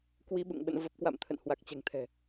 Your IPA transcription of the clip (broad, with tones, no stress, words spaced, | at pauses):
kwi˨˦ɓṵ˧˨ŋɓə̰˧˨n və˨˩p̚kwa̰˧˨m t̪ʰə̰˧˨nhwa˨˩k̚t͡ɕɛ̤˨˩ŋt̪ʰɛ̤˨˩